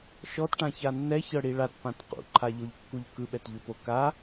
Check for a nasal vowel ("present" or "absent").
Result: present